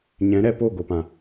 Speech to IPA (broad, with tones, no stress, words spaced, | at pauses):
ɲɛ̃˨˦ɾɛ˧po˦˨ ɡo˨pã˨